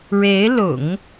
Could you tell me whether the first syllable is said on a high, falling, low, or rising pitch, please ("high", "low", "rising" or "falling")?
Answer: rising